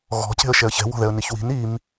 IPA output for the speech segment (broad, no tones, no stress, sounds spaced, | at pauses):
ɣ ɔ̤ c e̤ ə̯ ʃ ɛ ə̯ ç ɛ̤ w ɔ̤ ð ɛ ə̯ n i ç w i̤ n i m